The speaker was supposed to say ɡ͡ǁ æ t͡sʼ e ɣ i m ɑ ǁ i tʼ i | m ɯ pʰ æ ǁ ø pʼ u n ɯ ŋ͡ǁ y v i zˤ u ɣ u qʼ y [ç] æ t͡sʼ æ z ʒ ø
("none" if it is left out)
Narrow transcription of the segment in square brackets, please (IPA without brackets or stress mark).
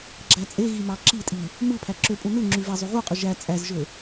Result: ʒ